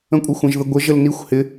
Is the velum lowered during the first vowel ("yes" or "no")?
yes